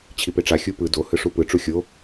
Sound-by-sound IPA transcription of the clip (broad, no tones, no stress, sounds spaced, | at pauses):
t͡ɕʰ i p e ʈ͡ʂ a xʲ u p ɯ d o h ɯ ʂ u p ɯ ʈ͡ʂ u xʲ o